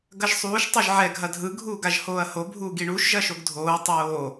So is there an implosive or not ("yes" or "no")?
no